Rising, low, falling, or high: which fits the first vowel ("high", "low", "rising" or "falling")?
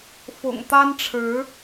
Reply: low